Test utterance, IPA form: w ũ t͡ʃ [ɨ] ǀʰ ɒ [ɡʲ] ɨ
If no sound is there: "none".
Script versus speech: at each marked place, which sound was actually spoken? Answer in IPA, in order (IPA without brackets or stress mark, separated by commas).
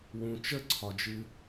ə, d͡ʒ